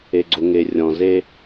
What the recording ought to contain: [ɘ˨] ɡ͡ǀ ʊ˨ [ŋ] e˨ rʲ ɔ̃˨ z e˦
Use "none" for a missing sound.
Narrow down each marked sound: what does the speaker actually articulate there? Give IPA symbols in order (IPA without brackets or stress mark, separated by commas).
e˨, ŋ